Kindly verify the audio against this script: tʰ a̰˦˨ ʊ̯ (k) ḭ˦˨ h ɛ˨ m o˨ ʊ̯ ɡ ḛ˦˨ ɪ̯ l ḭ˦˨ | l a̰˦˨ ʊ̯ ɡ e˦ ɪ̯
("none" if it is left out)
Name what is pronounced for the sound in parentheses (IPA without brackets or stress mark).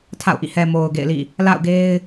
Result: ʔ